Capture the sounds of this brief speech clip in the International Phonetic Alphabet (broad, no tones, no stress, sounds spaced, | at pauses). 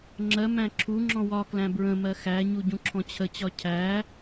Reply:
ŋ͡ǁ ɜ m æ̃ ǁʰ u ŋ͡ǁ ɔ̃ w ɒ k l æ̃ b ɹ ə̃ m ɜ x æ ɲ u ɟ ũ ǁʰ ɔ̃ t͡ɕʰ ə t͡ɕ ɒ cʰ æ